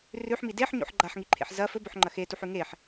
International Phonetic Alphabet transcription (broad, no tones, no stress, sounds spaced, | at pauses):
r ʉ ħ m i d e ħ ɲ o̰ ħ ɡ͡ǃ a ħ ŋ i ǃʰ ḛ ħ z ɐ f ɵ b ɵ ħ ŋ͡ǃ ɐ x e t u ħ ʉ ŋ e ħ